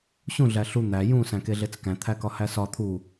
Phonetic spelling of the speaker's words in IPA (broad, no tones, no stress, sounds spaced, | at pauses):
ɕ ũ ɮ æ ɬ u n̪ æ j ũ s æ̃ k e ɮ e t͡s k æ̃ t̪ʰ æ k ɒ h æ s ɒ t̪ʰ u